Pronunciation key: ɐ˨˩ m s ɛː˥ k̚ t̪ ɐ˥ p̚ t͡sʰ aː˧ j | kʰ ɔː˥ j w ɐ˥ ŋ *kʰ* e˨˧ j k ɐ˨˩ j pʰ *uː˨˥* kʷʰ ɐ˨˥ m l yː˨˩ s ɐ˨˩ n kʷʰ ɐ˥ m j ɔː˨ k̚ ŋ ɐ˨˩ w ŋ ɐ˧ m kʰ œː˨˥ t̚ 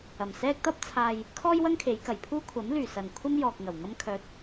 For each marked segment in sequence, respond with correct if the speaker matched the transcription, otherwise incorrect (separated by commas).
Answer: correct, incorrect